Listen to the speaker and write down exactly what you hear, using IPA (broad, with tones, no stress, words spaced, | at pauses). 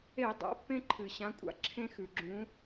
e˧˩˧ dˤa̰˩˧˩pːẽ˦ǃʰɨ˩ ɕã˨˦kʷʼa̰˨˦ ǁʰẽ˦xʉ˩ɡ͡ǁũ˨˦